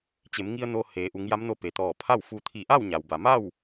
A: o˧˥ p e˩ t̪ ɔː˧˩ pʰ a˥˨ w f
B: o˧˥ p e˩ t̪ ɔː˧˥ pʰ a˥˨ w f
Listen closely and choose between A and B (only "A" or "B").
A